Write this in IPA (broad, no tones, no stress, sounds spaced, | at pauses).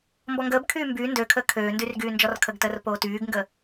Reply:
m b ɔ ŋ ɡ əː b kʰ yː m b yː n d ø kʰ əː kʰ øː n d y r ɡ yː n d͡ʒ ɔ r kʰ ə ɡ t əː r p oː t yː ɡ ŋ ɡ ə